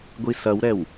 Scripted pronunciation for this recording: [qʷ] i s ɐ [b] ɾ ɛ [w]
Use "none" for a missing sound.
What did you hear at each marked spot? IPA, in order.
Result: ɡʷ, w, w

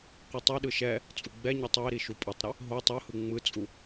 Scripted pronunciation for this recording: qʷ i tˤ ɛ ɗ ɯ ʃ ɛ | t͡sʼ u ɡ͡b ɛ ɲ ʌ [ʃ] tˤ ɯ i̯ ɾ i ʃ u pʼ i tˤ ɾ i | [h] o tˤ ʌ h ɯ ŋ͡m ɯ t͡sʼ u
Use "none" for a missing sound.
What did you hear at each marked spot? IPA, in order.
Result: none, ɦ

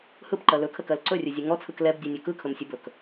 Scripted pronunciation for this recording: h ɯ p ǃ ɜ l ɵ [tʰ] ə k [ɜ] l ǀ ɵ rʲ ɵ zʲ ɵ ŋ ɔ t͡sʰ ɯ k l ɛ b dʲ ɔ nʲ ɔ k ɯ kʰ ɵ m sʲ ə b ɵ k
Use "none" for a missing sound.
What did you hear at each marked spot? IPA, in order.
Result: kʰ, ɜ

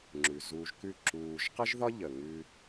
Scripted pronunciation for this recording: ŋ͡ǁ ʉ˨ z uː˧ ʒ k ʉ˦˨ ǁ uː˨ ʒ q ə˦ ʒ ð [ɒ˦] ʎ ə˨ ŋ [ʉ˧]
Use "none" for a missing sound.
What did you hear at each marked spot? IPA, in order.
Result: ɒ˦, ʉ˧

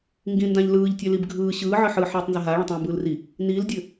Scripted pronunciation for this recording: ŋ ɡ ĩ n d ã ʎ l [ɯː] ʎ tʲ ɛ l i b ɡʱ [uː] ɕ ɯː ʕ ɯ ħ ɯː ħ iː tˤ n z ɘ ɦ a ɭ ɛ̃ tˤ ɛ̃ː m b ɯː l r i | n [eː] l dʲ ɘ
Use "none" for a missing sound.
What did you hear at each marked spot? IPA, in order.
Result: ɯː, ɯː, iː

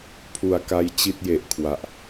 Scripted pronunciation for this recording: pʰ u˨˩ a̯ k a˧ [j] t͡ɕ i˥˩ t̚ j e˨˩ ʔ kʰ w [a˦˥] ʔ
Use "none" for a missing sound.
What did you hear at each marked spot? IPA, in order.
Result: j, a˨˩

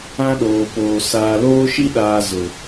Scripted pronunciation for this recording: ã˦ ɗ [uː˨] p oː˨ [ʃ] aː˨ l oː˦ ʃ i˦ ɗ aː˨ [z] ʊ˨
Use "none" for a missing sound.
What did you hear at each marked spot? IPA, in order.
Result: oː˨, s, z

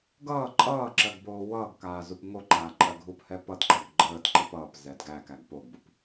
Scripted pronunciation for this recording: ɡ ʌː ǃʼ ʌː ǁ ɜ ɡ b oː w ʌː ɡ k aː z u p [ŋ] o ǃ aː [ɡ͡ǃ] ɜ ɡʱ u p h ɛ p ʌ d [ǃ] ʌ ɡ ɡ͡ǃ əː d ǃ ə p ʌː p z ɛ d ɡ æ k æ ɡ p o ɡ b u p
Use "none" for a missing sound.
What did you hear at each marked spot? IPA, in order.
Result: ŋ, ǃʼ, ǃ

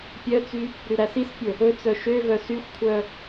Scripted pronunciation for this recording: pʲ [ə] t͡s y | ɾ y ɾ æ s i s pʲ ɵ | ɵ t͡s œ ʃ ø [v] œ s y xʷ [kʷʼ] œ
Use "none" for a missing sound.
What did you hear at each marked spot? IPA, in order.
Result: œ, v, kʷʰ

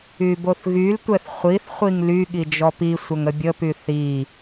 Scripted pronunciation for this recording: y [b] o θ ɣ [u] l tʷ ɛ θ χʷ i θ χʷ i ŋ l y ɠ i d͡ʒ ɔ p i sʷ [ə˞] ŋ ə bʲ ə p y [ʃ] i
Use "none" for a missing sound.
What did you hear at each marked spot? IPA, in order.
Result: b, y, ə, θ

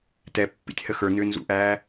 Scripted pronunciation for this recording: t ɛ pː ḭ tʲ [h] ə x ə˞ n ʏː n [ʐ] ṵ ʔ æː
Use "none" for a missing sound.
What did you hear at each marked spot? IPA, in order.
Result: h, z

